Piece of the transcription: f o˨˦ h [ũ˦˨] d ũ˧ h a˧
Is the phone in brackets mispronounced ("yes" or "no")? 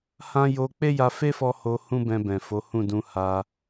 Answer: no